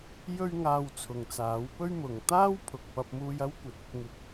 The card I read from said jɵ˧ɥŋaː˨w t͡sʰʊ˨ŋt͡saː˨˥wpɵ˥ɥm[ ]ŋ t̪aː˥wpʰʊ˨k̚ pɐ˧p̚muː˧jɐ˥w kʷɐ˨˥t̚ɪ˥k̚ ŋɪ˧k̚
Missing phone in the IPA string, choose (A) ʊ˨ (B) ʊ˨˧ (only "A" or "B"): B